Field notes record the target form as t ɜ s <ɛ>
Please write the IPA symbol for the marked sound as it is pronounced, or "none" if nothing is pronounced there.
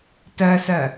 ɜ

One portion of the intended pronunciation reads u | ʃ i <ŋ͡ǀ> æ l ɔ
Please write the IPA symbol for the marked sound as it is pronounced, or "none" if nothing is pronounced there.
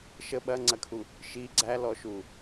ɡ͡ǀ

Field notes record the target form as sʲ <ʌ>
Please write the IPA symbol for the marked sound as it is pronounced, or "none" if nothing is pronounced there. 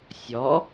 ɔ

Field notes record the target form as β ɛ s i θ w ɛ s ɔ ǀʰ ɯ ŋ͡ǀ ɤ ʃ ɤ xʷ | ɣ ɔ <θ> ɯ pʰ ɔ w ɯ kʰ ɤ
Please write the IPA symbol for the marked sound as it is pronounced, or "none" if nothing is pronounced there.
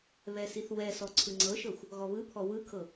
β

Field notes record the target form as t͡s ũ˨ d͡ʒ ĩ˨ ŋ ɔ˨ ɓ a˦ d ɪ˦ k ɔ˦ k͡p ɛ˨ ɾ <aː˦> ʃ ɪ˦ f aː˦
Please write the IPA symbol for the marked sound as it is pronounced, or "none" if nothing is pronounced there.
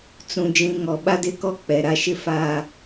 a˦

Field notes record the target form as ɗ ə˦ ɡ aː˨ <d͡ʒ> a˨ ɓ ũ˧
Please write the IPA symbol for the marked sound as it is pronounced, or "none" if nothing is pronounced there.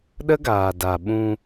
d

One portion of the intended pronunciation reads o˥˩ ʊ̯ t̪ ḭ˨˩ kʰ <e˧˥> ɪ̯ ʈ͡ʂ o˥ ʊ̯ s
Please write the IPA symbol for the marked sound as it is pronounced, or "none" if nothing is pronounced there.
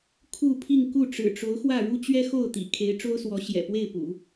e˧˥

